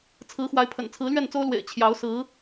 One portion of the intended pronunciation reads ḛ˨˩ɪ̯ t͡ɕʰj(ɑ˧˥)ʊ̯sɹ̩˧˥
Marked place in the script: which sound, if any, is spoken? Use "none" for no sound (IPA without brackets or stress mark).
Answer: ɑ˧˥